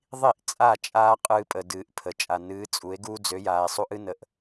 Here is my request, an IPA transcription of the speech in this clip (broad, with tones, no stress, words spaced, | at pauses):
ðˤi˦˨ʔ t͡sʼa˦˨t͡ʃʼaː˦ qʼɨː˦pʼə˨dɨː˨ʔ pʰə˨t͡ʃʼa˨nɨː˨˦t͡sʼu˨˦e̯ ɡuː˦d͡zø˨˦ jaː˨e̯sˤu˦ʔɨ˦ nə˨ʔ